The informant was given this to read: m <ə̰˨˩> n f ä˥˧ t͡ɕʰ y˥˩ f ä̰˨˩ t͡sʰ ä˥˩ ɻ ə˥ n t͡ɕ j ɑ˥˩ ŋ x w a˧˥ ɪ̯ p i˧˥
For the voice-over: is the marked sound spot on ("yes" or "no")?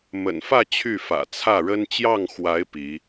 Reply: yes